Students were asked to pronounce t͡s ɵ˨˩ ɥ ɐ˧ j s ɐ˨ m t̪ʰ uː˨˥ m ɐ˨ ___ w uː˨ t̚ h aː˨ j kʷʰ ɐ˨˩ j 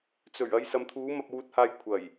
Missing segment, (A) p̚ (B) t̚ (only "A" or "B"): A